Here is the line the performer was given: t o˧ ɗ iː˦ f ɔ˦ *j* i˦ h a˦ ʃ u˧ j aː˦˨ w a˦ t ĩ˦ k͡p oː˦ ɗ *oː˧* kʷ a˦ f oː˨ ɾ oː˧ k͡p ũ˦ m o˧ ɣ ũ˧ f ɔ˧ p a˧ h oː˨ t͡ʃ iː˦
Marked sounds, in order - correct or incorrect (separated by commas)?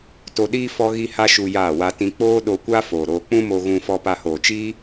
incorrect, incorrect